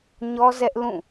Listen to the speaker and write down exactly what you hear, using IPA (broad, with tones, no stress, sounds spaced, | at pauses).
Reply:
ɲ ɔ˦ z ɛ˦ ʔ l ũ˦˨